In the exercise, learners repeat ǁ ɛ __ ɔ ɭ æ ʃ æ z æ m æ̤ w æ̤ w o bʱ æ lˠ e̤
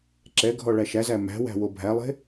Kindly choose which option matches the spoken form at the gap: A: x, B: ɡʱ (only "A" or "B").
B